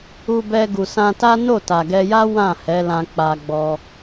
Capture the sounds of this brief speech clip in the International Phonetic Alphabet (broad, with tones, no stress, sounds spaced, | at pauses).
u˧ b ɛ˧ ɡ u˨ s ã˧ t a˦ n o˦˨ t a˨ ɡ ɛ˧ j a˦ w ã˦˨ h ɛ˨˦ l ã˧ k͡p a˧ ɡ͡b ɔ˧